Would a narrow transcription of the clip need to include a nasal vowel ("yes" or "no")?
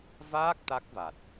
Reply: no